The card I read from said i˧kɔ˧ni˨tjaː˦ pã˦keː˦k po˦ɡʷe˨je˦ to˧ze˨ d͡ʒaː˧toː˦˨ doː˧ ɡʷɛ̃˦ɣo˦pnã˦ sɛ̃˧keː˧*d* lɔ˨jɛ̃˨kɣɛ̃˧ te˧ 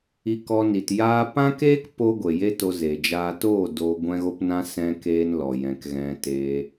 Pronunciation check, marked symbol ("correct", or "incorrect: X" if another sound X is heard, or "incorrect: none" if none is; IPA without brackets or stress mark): incorrect: n